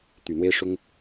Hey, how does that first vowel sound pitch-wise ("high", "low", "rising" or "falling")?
low